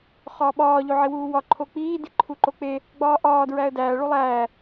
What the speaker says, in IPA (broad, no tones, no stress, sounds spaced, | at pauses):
χ ɒː ɓ ɒː ʎ o ʕ i w uː w ɒ ǃʰ o k͡p iː d i ǃʰ u ǃ o k͡p e | ɡ͡b ɒː ʔ ɒː d ɹ æ ə̯ d æː ɭ u lˠ æː